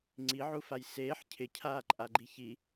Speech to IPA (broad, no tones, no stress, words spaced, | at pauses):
ŋ͡ǀiʕufaj seːħ cʰɪcʰaːǃʼaɡ͡ǃi çi